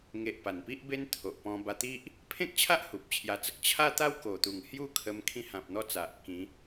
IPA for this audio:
ŋ e˨ ʔ p a˨˩ n p i˦ ʔ b e˦ n t̪ʰ o˨ ʔ p ɔ̃˧ b a˧ t̪ i˦ ʔ | pʰ ẽ˦ k̚ t͡ɕʰ a˦ ʔ h u˨ p̚ t͡ɕʰ j a˧ t͡s ə˦ k̚ t͡ɕʰ a˦ t̪ a˦ w k o˨˩ t̪ u˨˩ ŋ h j u˥˧ kʰ ə˧ m kʰ ĩ˧ h ã˨ p̚ n̪ ɔ˦ t͡s a˨ ʔ k ĩ˨˦

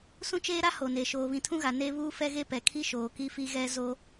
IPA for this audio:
s ũ˦ t͡ʃ eː˦ ɾ a˦ h o˨ n e˨ ʃ oː˨ β ĩ˨ tʰ ũ˦ ɣ a˨ n e˦ β uː˦ f ɛ˦ ɣ e˦ p ɛ˨ kʰ i˦ ʃ oː˨ k i˦ f i˦ ɣ ɛ˦ z o˦

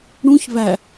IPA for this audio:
ɽ ũ ç β æ

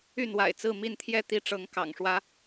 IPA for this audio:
y˥˨ n w a̰˨˩ ɪ̯ t͡s ɹ̩˥˨ m i˥˨ n t̪ʰ j ɛ˥˨ t̪ i˥˨ ʈ͡ʂ ɤ˨˦ ŋ k ɑ̰˨˩ ŋ ʂ w ä˦

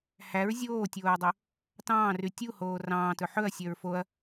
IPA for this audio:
h æ ɹ zʲ oː tʲ oː ɹ dˤ o | t ɑ̃ː r y tʲ u h oː r ɑ̃ː t ɵ ħ ɵ ɐ̯ sʲ œ ɹ f o ɐ̯

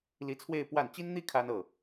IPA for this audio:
l i˧˥ t͡sʰ w e˥˧ ɪ̯ p w a˥˩ n t͡ɕ i˥ n n̪ i˥ kʰ a˥ n ɤ˥˩

